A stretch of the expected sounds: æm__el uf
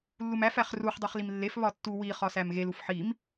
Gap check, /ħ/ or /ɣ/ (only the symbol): ɣ